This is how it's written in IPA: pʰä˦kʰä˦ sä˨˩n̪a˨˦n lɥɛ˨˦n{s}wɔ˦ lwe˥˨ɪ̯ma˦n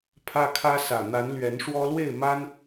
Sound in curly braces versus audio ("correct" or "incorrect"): incorrect